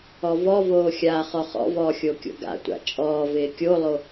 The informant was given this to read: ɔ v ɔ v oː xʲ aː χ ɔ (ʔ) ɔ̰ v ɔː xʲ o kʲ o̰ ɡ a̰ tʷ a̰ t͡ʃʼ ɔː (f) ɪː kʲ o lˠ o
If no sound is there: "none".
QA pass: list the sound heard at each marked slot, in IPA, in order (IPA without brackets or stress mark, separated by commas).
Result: χ, v